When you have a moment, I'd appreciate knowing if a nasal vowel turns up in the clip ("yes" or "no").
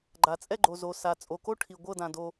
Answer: yes